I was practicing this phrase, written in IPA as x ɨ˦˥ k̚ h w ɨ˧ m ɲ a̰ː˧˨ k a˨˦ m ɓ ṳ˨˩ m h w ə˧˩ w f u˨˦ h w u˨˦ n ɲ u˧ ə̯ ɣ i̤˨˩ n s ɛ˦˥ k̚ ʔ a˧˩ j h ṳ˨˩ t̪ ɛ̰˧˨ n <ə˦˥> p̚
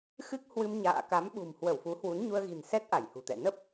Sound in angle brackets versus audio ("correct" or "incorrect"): correct